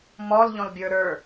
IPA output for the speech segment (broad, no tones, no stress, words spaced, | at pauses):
mɔlʎɔ̃lbʲə˞ ɾə˞